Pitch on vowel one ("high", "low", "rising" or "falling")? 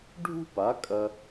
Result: high